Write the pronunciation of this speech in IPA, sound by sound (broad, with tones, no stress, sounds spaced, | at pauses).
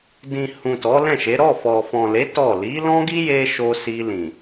d ĩ˨ h ũ˨ t ɔ˨˦ l ɛ̃˦˨ ʃ e˨˦ ɾ ɔ˦˨ f ɔ˨ f ɔ̃˨ l e˨˦ t ɔ˦˨ l i˨˦ l ɔ̃˦ ɡ i˦ j e˧ ʃ o˧ s i˧ l ĩ˨